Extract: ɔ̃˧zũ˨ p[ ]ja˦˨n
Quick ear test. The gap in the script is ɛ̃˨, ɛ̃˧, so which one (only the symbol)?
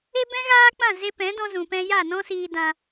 ɛ̃˧